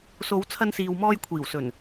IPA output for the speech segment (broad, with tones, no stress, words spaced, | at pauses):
so˨˧wt͡sʰɐ˧nsiː˨wmɔː˧j kʷʰiː˨˩wsɵ˨˩n